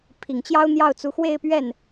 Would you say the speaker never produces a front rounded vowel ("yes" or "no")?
yes